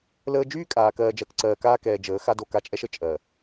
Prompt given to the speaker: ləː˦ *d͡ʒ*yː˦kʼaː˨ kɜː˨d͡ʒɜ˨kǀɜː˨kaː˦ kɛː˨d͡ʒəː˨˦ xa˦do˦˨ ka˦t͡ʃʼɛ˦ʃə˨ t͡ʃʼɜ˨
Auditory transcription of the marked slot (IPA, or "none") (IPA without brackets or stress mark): d͡ʒ